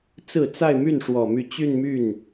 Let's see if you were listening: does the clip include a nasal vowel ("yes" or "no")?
no